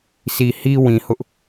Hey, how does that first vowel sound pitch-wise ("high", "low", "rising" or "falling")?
low